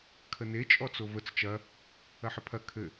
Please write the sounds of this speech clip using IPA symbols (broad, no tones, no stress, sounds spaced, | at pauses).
kʰ ə n e t͡ʃʼ ɔ t͡s o v ə t͡s t͡ʃ ɐ | ɐ ħ ə pʰ ɐ kʰ ɘ